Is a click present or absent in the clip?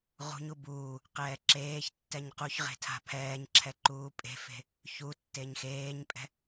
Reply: present